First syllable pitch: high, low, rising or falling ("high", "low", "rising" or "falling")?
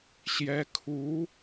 rising